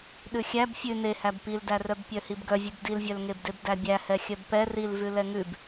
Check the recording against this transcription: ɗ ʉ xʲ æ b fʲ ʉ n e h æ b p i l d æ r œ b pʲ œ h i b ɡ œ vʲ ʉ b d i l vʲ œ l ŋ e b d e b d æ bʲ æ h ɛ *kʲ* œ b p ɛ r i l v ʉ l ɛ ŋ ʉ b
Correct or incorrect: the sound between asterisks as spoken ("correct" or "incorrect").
incorrect